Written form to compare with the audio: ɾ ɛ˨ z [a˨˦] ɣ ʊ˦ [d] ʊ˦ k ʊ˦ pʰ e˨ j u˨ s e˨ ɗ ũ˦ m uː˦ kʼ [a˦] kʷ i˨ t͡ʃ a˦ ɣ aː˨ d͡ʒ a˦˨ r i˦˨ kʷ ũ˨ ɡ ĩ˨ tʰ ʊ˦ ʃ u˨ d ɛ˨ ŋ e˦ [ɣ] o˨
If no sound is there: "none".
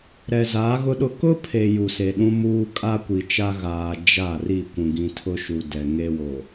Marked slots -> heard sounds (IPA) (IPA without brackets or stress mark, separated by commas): a˨˦, ɗ, a˦, w